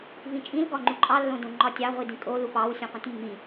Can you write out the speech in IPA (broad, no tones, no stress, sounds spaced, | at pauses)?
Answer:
v ĩ t͡ʃʼ ĩ l ɡ ɒ ŋ͡ǃ u ǃʼ ɑ lː õ d õ ŋ͡ǃ ɒ tʲ ɑ ʁʷ i d ĩ kʼ o l u p ɑ w sʲ õ qʷ ĩ t mː ĩ